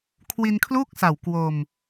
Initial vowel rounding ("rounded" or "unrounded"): unrounded